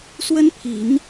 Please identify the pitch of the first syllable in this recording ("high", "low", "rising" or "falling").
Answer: high